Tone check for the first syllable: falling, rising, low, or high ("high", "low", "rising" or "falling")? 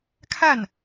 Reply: falling